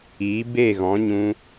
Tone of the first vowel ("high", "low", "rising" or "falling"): rising